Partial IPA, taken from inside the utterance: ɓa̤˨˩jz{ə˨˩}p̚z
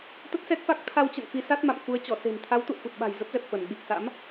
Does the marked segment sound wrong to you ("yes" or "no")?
yes